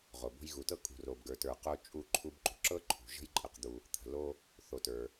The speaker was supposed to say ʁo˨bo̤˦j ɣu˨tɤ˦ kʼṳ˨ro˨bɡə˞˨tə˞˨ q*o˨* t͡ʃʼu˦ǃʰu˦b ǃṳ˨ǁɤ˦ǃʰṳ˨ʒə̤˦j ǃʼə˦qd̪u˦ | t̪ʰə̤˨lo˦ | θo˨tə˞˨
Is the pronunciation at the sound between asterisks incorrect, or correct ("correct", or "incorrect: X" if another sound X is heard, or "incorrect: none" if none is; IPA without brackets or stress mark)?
incorrect: o˦